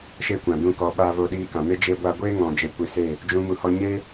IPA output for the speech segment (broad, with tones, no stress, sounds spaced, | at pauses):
ʃ e˦ kʷ ã˨ d ũ˦˨ k ɔ˧ ɓ a˧ v o˧ ɗ iː˧ k ã˨ m e˦ d͡ʒ e˦ ɡʷ a˦ ɡʷ eː˦ ŋ ɔ̃˨ d͡ʒ e˧ kʷ i˧ s e˦˨ | d͡ʒ ũ˦ m u˧ h ɔ˦ ɲ e˦